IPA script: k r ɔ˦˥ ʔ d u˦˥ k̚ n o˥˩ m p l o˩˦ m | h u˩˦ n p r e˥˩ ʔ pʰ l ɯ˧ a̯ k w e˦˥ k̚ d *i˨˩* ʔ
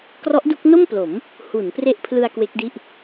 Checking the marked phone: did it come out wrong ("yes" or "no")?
yes